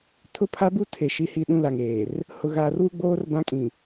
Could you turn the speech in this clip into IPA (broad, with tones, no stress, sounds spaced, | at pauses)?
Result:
tʰ ʊ˦ pʰ a˦ b u˦ tʰ e˨ ʃ i˨ h i˨ ɗ ũ˦ l a˨ ŋ eː˨ r | h ʊ˨ ɣ aː˨ r w u˦ ɡ͡b oː˦ r b ã˦ kʼ ĩ˨